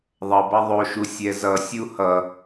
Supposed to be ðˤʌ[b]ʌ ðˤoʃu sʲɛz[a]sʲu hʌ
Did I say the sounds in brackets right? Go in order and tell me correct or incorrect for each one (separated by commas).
correct, incorrect